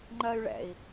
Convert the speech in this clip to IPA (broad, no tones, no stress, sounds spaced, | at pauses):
ŋ͡ǃ ɜ y̯ ɭ ɛ̰ i̯